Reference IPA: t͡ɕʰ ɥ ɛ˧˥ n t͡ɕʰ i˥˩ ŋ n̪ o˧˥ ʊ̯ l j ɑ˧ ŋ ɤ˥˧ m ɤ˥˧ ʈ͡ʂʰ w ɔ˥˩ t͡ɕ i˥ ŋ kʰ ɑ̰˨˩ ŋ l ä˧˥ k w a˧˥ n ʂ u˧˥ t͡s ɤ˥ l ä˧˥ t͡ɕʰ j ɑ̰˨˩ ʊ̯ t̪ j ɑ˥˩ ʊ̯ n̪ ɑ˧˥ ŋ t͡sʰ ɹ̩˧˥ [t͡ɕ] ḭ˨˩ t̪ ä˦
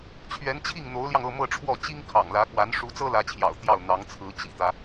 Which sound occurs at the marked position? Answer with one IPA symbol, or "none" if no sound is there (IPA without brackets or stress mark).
t͡ɕ